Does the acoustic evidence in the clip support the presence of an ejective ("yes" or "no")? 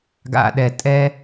yes